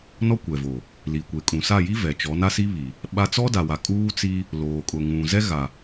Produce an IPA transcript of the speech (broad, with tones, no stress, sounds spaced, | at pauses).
n ɔ˦ kʷ ɛ˨ v o˨ | l iː˨ kʷ e˨ kʼ ũ˨ s a˦˨ j i˦ v ɛ˨ t͡ʃ ɔ˨˦ n a˦ s i˦ β i˨ | ɓ a˦ t͡s ɔ˦ d a˨ w a˨ kʼ uː˦ t͡s i˦ | l oː˨ kʼ ʊ˨ ŋ ũ˨ z ɛ˦ ɣ a˨